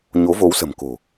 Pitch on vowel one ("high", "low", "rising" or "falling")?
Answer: rising